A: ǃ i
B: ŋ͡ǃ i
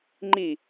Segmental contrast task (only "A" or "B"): B